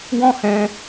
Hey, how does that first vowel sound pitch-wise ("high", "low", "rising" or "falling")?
high